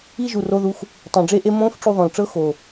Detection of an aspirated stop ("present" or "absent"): absent